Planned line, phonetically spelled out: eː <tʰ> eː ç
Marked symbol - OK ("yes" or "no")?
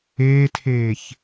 yes